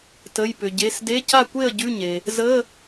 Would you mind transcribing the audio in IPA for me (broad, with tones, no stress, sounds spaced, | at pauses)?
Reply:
t ə˩˧˩ j p ʏ˩ ɟ e˩˧˩ s d e˧˥˧ c a˥˩ kʷ e˥˩ ə̯ ɟ ʉ˧˥˧ ɲ e˩ | z ə˧˥˧